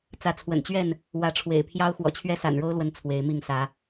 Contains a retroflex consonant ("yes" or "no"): yes